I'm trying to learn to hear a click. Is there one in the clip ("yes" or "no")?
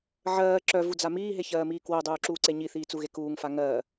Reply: yes